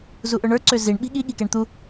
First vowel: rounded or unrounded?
rounded